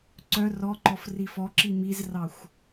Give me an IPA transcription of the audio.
ǀ œ r ɔ ǃ ɔ f r i f ɔ ǁ i m i z r ɑ xʷ

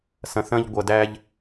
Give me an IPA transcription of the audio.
s ɐ̃˨ θ ɐ̃˦ ʎ ɡʷ ɐ˨ d æ˦ ʎ

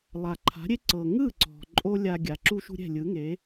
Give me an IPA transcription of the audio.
lˠ a˩ ǃʰ a̤˩˥ ɾʲ e˥ ǀ ɤ˩ ŋ ɯ˥˩ ǀ ɔ̤˩ ǃʼ o˥ lʲ a˧ ɡʲ a˩ ǁ u˥ ʃ ṳ˥ ɾʲ ɛ̤˥˩ lʲ ɯ˩˥ ŋ e˩˥

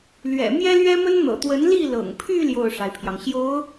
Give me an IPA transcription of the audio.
l ɥ ɛ̰˨˩ m j ɛ˥ l ɥ ɛ˥ m ə˥ n n̪ ɤ̰˨˩ t̪ w ə˧˥ n l i˥˩ l ɤ̰˨˩ ŋ pʰ y˥˧ l j o˥˩ ʊ̯ ʂ a˩ ɪ̯ pʰ j ɑ˩ ŋ ɕ j o˧˥ ʊ̯

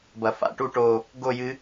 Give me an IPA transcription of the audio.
b ɐ˨ f a̰˦˨ ʈ u˧ ʈ o˨ | ɡ o˦˨ j ɨ˧

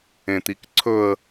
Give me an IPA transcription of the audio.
ẽ t̪ i k ǀʰ ɵ ə̯

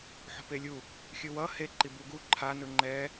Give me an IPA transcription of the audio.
ħ o̤ p e lʲ u | xʲ ɯ w ʌ h e ǃ i b u ɡ u ǃʰ a n ɯ ŋ͡ǃ ɛ

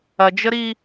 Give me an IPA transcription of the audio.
ɐ d͡ʒ ə ɾ i

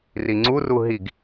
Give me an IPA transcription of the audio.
r i ŋ͡ǀ u r u ɦ i ɡ

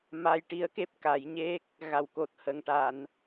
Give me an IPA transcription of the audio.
m a˧ j ʈ i˧˥ ə̯ k e˦˥ p̚ k a˨˩˦ j ɲ e˦˥ k̚ | ɣ a˨˩ w k o˨˩ t̚ h ə˨˩ ŋ ʈ a˨˩˨ n

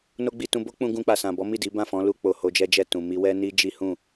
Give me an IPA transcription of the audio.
n o˦ ɡ͡b i˧ t ũ˧ b o˦ k͡p ũ˧ ɡ ũ˧ k͡p a˨ s ã˨ b ɔ˨˦ m i˦˨ d i˨˦ b ã˦˨ f ɔ̃˨˦ l u˧ k͡p o˨ h o˧ d͡ʒ ɛ˦ d͡ʒ ɛ˦˨ t ũ˨ m i˧ w ɛ˦ n i˦ d͡ʒ i˦ h ũ˦˨

